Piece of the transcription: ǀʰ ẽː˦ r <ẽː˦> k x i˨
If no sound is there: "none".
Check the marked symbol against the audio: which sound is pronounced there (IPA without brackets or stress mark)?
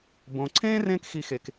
ẽː˥